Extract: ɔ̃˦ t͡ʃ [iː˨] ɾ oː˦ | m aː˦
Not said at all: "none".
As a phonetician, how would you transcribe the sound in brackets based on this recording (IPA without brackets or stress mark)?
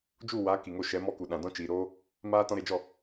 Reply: iː˨